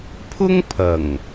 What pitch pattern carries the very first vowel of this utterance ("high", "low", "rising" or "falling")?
high